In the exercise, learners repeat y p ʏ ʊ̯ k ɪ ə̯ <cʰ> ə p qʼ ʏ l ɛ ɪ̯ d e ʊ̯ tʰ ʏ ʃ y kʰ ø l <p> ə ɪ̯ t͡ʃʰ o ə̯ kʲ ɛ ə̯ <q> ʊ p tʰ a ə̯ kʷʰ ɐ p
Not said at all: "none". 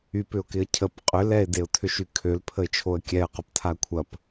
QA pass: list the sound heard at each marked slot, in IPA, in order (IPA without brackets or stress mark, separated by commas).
cʰ, pʰ, q